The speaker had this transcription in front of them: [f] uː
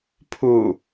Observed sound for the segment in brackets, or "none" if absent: pʰ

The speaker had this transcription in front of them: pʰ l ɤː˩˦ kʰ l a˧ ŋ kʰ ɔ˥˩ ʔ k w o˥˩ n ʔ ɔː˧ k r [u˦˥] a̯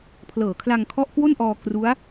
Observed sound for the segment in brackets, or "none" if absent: u˦˥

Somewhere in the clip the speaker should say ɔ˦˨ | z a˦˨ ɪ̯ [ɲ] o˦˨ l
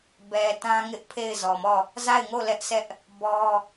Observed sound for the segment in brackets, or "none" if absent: ŋ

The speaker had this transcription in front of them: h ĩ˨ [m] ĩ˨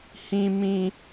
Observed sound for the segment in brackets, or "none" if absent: m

